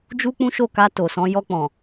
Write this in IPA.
d͡ʒu˦k͡pũ˦ʃo˦˨ka˧ to˨sɔ̃˧ jɔ˧k͡pɔ̃˨

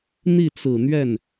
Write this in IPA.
n̪i˥˩t͡sɹ̩˨˩n̪ɥɛ˥˩n

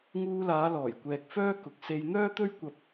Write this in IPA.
ŋuː˧laː˨˧lɔː˨˩j kʷɛː˨k̚fœː˥ kʊ˨˥k̚ se˧j n̪œː˥t̪ɵ˥ɥ kʷɐ˧p̚

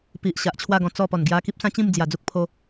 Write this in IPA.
pi˨ʔ ɕa˨ʔt͡ɕʰwa˥˧ɡɔ̃˧ t͡sɔ˥˧pɔ˨˩nɡja˦ ki˦p̚sã˦t͡ɕĩ˥˧m d͡zja˨˩d͡zu˦k̚pʰo˧

